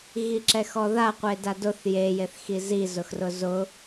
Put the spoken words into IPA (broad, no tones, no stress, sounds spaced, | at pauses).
ɣ i ǁ ɛ x ɔ ð a qʷ e d a d ʊ θ j e j e θ x i z i z ʊ x r ʊ z ʊ